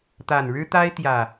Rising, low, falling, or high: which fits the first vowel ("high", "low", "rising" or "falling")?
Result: low